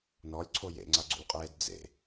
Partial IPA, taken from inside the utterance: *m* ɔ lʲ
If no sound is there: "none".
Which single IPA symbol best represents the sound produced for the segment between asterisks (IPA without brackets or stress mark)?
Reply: n